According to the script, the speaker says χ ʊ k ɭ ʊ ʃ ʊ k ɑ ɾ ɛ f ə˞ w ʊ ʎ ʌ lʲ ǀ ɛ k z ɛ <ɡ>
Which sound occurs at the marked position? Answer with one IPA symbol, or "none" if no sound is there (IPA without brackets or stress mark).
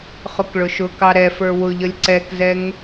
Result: ŋ